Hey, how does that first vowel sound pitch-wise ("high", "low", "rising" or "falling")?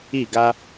falling